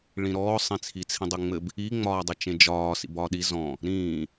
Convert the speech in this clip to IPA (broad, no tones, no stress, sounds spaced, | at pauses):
ɭ ĩ ɾ ɔː sˤ ĩ t͡sʰ i t͡sʰ ĩ dˤ e ŋ͡m ɘ b | i ŋ͡m ɒː dˤ ɘ t͡ʃ ẽ d͡ʒ ɒː s ḭ b ɒː ɗ i z ɔ̃ | ɾ ĩː